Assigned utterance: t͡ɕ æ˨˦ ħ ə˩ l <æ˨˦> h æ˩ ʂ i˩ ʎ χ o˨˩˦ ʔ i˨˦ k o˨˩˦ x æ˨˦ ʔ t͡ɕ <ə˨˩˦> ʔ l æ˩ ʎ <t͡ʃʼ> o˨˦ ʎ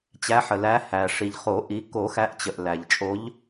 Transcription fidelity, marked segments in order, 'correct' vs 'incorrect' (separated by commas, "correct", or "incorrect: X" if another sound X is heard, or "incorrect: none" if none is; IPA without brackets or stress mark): correct, incorrect: ə˩, correct